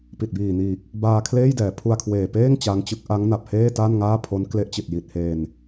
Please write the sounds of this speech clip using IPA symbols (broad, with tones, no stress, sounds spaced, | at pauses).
p i˨˩ t̚ b iː˨˩ n iː˨˩ k̚ | b aː˧ kʰ l eː˥˩ j d ɛː˩˦ pʰ u˧ a̯ kʰ w eː˨˩ p eː˥˩ ŋ t͡ɕ a˦˥ ŋ t͡ɕ ɯ˦˥ k̚ ʔ a˦˥ ŋ n a˨˩ p̚ h eː˥˩ t a˥˩ n ŋ aː˥˩ pʰ o˦˥ n k l e˦˥ ʔ t͡ɕ i˨˩ t̚ j i˨˩ t̚ h eː˧ n